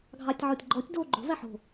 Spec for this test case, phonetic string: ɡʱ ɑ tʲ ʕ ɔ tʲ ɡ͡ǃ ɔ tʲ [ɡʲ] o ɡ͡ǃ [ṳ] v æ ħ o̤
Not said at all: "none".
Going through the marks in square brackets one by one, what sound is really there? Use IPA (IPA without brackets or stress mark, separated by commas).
d, o̤